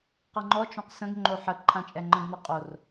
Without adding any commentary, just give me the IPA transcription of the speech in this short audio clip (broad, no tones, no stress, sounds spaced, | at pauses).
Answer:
q ʌ ŋ͡ǃ ɔ t͡ʃ õ q s ə̃ ɡ ŋ͡ǃ o ħ ə ǃʰ ã t͡ʃʼ ɛ ŋ͡ǃ ə̃ ɡ n ʌ qʼ o r